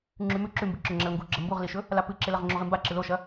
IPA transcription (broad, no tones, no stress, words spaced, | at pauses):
ŋ͡ǁʉmʉ ǁʉmbɨǁɵ ŋ͡ǁɐlŋɡuɡ͡ǁɐ mbuʁliʃɵ | lapɨǁelɐʁ ŋ͡ǁoʁimba ǁɨloʃɐ